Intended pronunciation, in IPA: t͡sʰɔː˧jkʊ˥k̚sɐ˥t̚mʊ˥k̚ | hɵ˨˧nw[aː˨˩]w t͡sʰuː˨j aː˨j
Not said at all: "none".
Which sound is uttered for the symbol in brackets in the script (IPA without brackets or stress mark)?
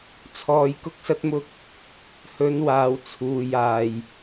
aː˨